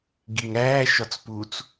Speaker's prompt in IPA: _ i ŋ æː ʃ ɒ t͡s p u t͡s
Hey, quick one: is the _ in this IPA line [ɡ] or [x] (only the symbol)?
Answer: ɡ